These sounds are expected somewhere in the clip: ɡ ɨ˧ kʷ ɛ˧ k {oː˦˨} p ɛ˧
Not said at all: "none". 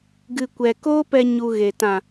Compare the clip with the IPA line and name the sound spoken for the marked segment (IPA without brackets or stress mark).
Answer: oː˦